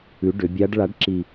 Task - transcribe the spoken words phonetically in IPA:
ʉ˩˥ɖʏ˩˧bʲa˧˥ɖ ɭa˩˥ɖǁi˨˩

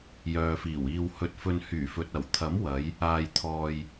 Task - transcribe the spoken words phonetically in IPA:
jœː˨fiː˨˩wiː˧w hɵ˧t̚fɵ˧n hyː˨˩fɵ˨t̚ɐ˨˩w t̪ʰɐ˨˥mwɐ˨˧j | aː˨jt̪ʰɔː˨j

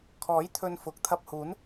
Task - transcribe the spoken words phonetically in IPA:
kʰɔː˨˥jt̪ʰɵ˧nfʊ˨k̚ t̪ʰɐ˧p̚huː˨˥n

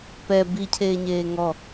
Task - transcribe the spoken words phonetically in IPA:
pɛ bicʰeːɲeː ŋɔ

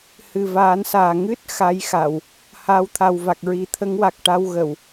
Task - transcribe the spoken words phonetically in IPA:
hɨ˨˩vaː˨˩˦nsaː˨˩ ŋɨ˦˥t̚ xa˧˥jxa˨˩˨w | haː˧˥wt̪ʰa˨˩w va˨˩k̚ɹi˨˩˦ t̪ʰə˧˥ŋwa˨˩k̚ʈa˧w ɣə˨˩˨w

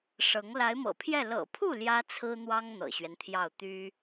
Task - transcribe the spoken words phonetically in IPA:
ʂɤ˧˥ŋ la˧˥ɪ̯mɤ̰˨˩pʰjɛ˥˩ lɤ̰˨˩pʰu˥˩ ljä˥t͡sʰɹ̩˥n̪wɑ˥ŋ n̪ɤ̰˨˩ɕɥɛ˦nt̪ʰjɑ˥˩ʊ̯ t̪y˥

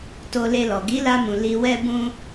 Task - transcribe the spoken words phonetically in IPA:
to˧le˧lɔ˨ ɡi˨˦la˧mũ˨ li˧wɛ˦bũ˦

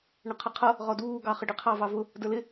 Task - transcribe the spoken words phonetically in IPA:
ɳəqʰəqʰʌ | ʁɔduː ɡɑχəɖiqʰɑ vɑvʊ | də˞lɪ

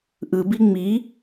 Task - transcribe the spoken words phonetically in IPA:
ʔɯbi ŋ͡mi

